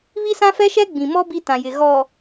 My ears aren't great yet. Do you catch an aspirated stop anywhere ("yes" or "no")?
no